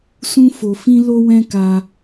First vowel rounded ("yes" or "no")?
yes